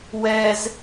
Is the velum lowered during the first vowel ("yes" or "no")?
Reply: no